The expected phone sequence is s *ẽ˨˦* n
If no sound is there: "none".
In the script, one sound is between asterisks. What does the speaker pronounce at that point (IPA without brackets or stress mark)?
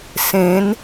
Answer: ẽ˨˦